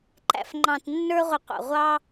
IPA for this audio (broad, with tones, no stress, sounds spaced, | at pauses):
ǃ æ̰˨ f ŋ͡ǃ ɑ̃˨ t nː ə˞˧ ʁʷ ə˨ qʷ ɑ̰˨ ʁʷ ɑ˧